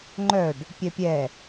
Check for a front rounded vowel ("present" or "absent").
present